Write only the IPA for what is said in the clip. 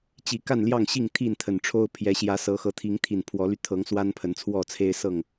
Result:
t͡ɕ i˨˩ k a˥˨ n l j ɑ˥˨ ŋ ɕ i˥˨ ŋ t̪ʰ i˥˨ n t̪ʰ ə˨˩ n ʈ͡ʂʰ o˦ ʊ̯ pʰ j ɛ˨˦ ɕ j ä˨˦ s ɤ˨˦ x ɤ˨˦ t̪ʰ i˨˦ ŋ t̪ʰ i˨˩ n pʰ w ɔ˨˦ l y˧ t̪ʰ ɤ˨˦ ŋ s w a˦ n pʰ ə˨˦ n t͡sʰ w ɔ˥˨ t͡sʰ e˦ ɪ̯ s ɤ˥˨ ŋ

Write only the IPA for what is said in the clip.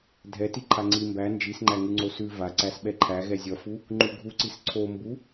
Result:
dʱ ɛ t i ǃʰ a ŋ͡ǀ i m b æ n d͡ʒ i s ŋ͡ǃ æ ŋ ʉ ŋ͡ǀ o s ʉ v a ǀ æ s ɓ ɛ ǃʰ æ ɣ ɛ zʲ ʌ f u | ŋ͡ǃ u ɡʱ u ǀ i s ǀʰ o m b u

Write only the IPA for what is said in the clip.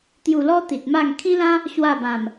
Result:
t̪ j u˨˩ l ɔ˧ t̪ i˨ t̚ m a˥˧ ŋ kʰ ĩ˦ l ã˦ | ɕ w a˥˧ b ã˨˩ m

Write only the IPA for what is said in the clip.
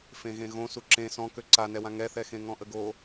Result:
f ẽ ɣ ẽ ɣ õ s u ǁ ẽ s ɔ̃ k ø ǀ a n ɛ w ã ŋ ɛ θ ɛ x ẽ ŋ ɔ̃ ʔ ə ɡ o

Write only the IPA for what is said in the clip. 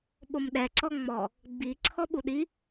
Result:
ɓ o m ɗ ɛ ǀ ɔ ŋ͡m ɔ | ɡ͡b i ǀʰ ɔ ɓ u ɗ i

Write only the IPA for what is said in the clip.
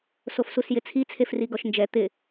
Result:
s o f s u s j ɪ t͡sʰ i t͡sʰ e f r i ɡ ɔ ʃ n d͡ʒ ɛ t̪ ɪ

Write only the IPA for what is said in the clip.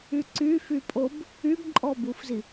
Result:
y ǀ y f y pʼ o b | y b ǃʼ ɔ b u f z i

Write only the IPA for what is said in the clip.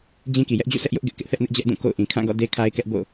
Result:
d͡ʑ ĩ˦ k i˨ j ɛ˦ ʔ d͡ʑ ṵ˦˨ sʰ ɛ˦ ʔ j ʊ˦ ʔ ɡ ɪ˦ ʔ k ɪ˦ ʔ θ ɛ˦ ʔ n ɪ˦ ʔ d͡ʑ ɛ˦ ʔ d ũ˦˨ k o̰˦˨ ʊ̯ ʔ ĩ˨ kʰ ã˦˨ ɡ ɔ̰˦˨ d e˦ kʰ a˦ ɪ̯ k ɛ˦ ʔ b o̰˦˨

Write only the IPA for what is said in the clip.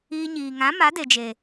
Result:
iː˧ ɲ iː˨ ŋ ã˨˦ m a˨˦ d e˨ d͡ʒ e˨

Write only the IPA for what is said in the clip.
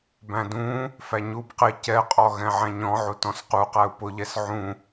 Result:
b æ̃ d ũ | f æ ɲ u b q ɪ c ɛ qʼ ɔ ɣ ɛ̃ ʕ æ̃ ɲ ɔ̃ ʕ u t ɔ̃ s q u q æ u̯ p ʊ ʎ ɛ s ʕ ũ

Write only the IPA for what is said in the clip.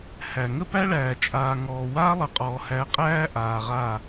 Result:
h æ˨ ŋ ə˦ p æ˦ ɭ æː˨ t͡ʃʼ aː˨ ŋ ɔː˨ w aː˦ lˠ ə˨ qʼ ɔː˨ h æ˨˦ qʼ æː˦ ʔ aː˨ ʁ aː˦˨

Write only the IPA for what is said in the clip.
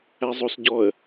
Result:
æ zˤ o s ɟ ɔ ə̯

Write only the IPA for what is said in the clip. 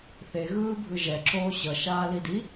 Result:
θ e ɣ ɯː bʱ ɯ ʒ ɛ ǁʰ oː ɕ ʌ ʃ aː l i d i

